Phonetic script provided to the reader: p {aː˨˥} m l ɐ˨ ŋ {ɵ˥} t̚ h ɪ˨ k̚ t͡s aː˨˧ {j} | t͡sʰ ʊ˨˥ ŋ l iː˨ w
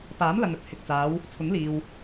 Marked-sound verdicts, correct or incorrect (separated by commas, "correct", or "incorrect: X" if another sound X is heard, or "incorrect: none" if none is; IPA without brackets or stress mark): correct, correct, incorrect: w